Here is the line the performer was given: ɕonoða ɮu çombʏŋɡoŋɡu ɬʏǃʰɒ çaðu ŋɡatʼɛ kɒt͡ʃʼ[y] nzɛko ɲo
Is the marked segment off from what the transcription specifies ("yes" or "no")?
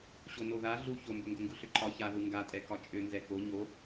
yes